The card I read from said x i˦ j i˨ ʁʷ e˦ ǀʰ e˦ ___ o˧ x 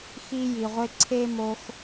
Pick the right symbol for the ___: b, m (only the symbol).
m